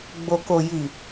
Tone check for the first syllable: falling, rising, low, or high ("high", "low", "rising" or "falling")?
low